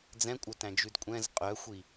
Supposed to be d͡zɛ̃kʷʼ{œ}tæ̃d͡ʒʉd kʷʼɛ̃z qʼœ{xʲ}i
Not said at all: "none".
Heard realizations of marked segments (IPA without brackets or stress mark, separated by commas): œ, xʷ